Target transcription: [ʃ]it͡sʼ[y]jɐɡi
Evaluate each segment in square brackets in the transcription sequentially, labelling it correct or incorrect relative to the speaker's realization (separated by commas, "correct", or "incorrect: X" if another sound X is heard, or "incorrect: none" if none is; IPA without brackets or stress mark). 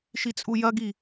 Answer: correct, incorrect: u